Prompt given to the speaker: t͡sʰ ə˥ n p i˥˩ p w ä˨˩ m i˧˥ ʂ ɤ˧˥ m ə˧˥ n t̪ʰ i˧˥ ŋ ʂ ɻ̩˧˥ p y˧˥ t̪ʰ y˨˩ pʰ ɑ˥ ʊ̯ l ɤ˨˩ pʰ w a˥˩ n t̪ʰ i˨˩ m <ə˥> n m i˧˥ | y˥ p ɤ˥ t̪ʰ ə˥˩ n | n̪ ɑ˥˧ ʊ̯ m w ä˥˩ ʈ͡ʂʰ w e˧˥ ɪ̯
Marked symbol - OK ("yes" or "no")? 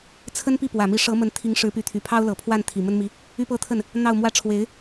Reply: yes